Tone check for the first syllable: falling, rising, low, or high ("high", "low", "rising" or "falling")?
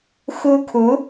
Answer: high